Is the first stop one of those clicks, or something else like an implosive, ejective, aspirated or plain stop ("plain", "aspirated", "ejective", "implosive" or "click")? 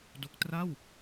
plain